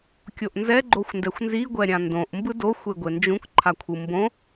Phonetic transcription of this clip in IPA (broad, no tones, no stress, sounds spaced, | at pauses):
kʲ o ʔ n z ɛ ɡ͡ǃ o xʷ n d ɛ xʷ n z i ɡʷ ɛ ɾʲ ã n d õ ʔ m b ɯ d o xʷ e ɡʷ e n d͡ʒ ũ k ǃʰ a kʷʰ ɯ m b õ